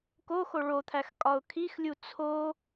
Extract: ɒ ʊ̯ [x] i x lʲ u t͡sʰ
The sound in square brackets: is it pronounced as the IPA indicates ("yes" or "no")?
no